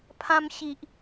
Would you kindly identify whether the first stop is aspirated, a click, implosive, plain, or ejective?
aspirated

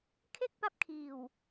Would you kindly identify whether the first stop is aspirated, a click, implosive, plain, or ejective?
aspirated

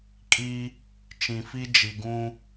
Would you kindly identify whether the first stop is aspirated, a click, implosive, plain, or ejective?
ejective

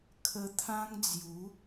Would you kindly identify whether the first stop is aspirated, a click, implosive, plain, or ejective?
aspirated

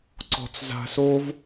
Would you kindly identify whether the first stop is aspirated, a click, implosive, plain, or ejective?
click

